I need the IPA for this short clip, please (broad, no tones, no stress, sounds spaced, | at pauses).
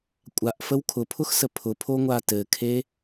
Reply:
kʷʼ a ʔ f ə w kʰ ʊ pʰ ʊ x s ə pʰ ʊ pʰ o ŋʷ a t ɘ kʰ e